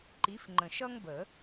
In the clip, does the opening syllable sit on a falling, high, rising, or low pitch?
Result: rising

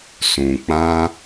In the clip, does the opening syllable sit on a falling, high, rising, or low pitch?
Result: low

